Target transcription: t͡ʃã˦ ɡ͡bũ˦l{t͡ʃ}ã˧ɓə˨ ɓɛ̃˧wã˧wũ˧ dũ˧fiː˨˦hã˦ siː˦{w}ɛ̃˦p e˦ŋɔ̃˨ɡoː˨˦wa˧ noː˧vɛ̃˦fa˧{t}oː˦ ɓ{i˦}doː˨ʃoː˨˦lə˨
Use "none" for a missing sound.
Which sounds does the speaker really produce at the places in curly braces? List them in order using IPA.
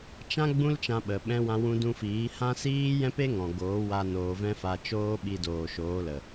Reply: t͡ʃ, j, t͡ʃ, i˧

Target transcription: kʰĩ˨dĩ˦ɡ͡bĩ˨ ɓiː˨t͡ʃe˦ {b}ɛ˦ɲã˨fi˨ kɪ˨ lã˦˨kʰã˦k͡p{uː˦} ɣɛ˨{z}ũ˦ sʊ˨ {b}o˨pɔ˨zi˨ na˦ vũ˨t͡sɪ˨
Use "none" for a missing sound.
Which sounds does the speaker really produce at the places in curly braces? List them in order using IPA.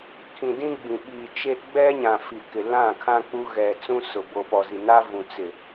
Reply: ɡ͡b, u˦, t͡s, b

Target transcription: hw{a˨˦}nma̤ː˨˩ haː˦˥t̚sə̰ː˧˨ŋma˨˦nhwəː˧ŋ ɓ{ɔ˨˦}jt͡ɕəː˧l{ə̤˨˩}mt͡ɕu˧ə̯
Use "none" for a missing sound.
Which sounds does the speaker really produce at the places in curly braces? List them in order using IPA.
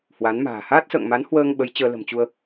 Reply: a˨˦, ə˨˦, ə̤˨˩

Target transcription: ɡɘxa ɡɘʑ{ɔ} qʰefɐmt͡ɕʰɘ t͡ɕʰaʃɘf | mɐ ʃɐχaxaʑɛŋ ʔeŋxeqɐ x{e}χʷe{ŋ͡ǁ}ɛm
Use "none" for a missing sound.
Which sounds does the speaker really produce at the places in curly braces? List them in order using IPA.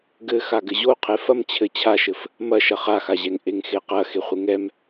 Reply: o, e, ŋ

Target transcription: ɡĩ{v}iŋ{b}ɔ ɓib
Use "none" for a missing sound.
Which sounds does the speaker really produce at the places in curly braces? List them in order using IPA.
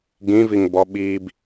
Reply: v, b

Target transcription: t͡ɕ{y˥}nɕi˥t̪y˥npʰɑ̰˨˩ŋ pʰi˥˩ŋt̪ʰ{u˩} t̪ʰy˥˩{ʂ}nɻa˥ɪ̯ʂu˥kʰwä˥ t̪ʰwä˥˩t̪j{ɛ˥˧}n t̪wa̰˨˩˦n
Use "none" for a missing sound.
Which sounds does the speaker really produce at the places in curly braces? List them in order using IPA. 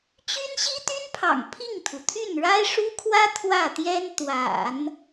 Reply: y˥, u˩, none, ɛ˥

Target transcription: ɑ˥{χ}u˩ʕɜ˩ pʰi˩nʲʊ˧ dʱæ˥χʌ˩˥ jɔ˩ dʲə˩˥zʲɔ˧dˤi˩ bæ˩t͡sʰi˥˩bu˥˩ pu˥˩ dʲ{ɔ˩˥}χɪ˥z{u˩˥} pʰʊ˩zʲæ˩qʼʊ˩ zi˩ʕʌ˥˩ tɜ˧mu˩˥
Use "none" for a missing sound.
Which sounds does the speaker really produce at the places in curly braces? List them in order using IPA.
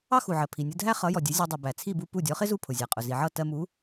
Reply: x, ɔ˩˥, u˥˩

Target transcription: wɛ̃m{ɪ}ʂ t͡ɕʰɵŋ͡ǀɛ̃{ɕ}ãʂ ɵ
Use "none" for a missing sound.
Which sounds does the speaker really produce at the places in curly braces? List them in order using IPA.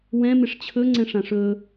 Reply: ɪ, ʂ

